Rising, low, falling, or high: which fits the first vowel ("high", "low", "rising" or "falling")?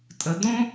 low